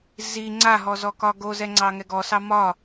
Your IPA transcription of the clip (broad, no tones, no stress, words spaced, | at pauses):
zi ŋ͡ǀaɦɔzɔkɒ ɡozɛŋ͡ǀɑŋɛ ɡɔsɑ mɒ